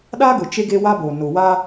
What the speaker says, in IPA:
ɗ a˦ ɡ ʊ˨ t͡ʃ e˦ ɡ e˦ w a˦ b oː˨ n ʊ˨ w aː˦

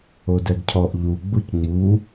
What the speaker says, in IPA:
o d ɛ ɡ cʰ ɔ ʔ ʎ u ɡ͡b u c ŋ͡m u

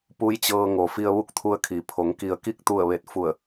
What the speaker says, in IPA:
p u˧˥ j t͡ɕ ɤː˧ ŋ o˩ f i˧ ə̯ ʋ u˥˨ k̚ t̪ʰ u˧ ə̯ kʰ i˩ pʰ o˩˧ ŋ k i˩ ə̯ k i˥˨ k̚ t̪ u˧˩ ə̯ ʋ e˧˩ t̚ f u˧˩ ə̯

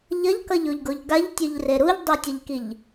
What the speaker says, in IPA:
ʎ ʌ ʎ k ʌ ʎ o ʎ ɡ o ʎ ɡ a ʎ tʲ o ʎ r e ɾ u ʎ dˤ e tʲ ʌ ʎ k i ʎ

